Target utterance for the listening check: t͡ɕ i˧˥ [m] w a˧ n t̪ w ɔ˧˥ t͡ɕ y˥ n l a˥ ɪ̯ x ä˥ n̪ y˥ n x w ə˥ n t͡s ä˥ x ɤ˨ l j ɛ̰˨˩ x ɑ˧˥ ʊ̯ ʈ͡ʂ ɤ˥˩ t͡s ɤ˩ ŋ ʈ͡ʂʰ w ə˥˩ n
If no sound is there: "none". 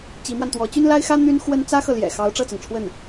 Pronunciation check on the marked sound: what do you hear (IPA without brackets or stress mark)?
m